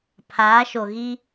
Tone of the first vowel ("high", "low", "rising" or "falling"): rising